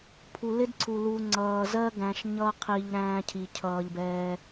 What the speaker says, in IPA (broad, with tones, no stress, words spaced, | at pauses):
pʰu˨lɪ˦dǀʰu˨ lu˧ ŋ͡ǀʌː˨zɜ˦ ɡæ̃˨ʃ ɲʌ˧qʰi˨ʎ ɾæ̃ː˦cʰi˨cʰʌː˧ʎbɛː˧